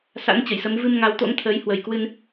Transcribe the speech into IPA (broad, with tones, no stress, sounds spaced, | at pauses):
s a̰˧˥ n t͡ɕ ə˧˩ j s ə˨˦ m v ɨ˧ m ŋ a˨˦ w t̪ o̰˧˥ ŋ t̪ʰ əː˨˦ j h w ə˨˩ j k w ɨ˧ n